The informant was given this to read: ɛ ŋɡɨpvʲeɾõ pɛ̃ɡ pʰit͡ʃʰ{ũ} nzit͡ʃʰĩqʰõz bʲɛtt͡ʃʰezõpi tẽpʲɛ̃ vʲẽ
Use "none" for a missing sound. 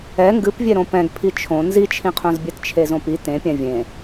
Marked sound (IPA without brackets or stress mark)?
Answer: õ